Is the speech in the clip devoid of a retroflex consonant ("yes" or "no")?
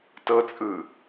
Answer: yes